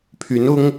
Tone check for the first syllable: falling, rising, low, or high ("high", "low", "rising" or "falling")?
rising